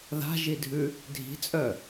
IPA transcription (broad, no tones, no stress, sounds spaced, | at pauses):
ð a̤ ʒ i dʱ ʉ | dʱ i̤ t͡sʼ œ